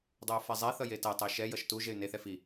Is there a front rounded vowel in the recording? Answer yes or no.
yes